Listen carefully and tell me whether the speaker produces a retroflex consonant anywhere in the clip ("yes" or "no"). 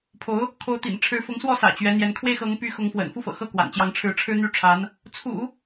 yes